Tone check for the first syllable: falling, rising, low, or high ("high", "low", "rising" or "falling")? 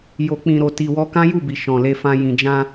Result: low